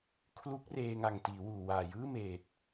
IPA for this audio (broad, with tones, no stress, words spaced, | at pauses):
kʰlu˦˥k̚reː˧ŋa˨˩ŋ tiː˩˦wuː˨˩waː˨˩jɯː˥˩ meː˨˩t̚